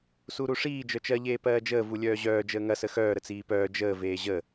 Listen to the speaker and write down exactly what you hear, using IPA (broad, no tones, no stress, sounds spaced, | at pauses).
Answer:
s u ɾ u ʂ iː d͡ʒ œ t͡ʃ ɜ ʎ eː p ɜː d͡ʒ əː v u lʲ œː ʑ œː d͡ʒ əː ŋ ɐ s ə x œː ɾ ə t͡s iː p œː d͡ʒ əː v eː ʑ ə